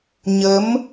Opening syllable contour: rising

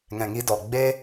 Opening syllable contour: low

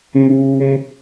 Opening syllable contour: high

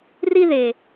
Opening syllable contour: high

